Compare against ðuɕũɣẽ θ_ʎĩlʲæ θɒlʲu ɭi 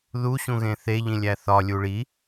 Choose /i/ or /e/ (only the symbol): e